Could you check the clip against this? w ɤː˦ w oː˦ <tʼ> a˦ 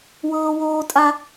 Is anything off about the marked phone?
no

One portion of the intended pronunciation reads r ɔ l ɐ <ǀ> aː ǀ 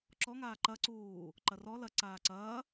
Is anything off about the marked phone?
no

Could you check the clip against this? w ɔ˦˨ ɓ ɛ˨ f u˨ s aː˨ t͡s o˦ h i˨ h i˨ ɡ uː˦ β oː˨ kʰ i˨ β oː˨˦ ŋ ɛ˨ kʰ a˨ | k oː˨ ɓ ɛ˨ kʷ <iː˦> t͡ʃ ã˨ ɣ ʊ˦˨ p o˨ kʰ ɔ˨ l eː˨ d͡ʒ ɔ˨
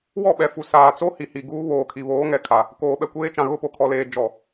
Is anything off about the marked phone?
yes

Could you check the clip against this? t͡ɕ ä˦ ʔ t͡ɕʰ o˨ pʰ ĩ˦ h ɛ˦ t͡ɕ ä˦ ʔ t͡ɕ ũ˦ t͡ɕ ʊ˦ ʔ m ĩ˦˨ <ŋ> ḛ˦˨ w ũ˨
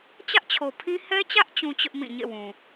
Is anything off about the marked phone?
yes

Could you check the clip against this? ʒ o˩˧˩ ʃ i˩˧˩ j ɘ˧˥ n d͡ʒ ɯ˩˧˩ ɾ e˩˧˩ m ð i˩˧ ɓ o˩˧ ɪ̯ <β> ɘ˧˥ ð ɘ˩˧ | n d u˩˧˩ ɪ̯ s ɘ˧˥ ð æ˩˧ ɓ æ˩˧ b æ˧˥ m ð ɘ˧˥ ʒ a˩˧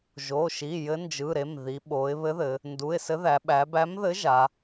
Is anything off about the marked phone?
no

